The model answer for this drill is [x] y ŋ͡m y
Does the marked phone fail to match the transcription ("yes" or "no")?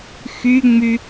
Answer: no